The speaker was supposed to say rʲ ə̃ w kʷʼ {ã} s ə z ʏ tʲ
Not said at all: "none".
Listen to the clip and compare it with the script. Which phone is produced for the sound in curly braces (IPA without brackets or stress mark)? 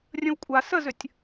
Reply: a